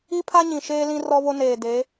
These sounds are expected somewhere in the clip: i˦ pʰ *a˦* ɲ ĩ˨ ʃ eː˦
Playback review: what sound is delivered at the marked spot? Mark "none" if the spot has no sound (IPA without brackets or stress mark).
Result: a˦